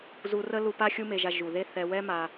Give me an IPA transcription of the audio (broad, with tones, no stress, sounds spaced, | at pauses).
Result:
z u˧ r ə˦ l u˧ p a˦ xʲ u˦ m e˧ ʒ a˧ ʒ u˨ ð e˦ θ ɛ˧ w ɛ˦ m a˧